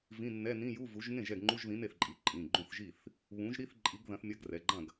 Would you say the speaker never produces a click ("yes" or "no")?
no